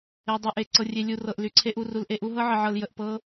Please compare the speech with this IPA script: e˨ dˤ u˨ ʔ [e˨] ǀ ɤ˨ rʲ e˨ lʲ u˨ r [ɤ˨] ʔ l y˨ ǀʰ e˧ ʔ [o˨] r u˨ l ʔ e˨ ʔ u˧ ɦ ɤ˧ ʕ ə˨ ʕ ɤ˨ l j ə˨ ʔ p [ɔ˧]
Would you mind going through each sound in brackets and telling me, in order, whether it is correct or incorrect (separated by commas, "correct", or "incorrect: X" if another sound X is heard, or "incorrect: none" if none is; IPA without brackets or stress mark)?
correct, correct, incorrect: u˨, incorrect: ɤ˧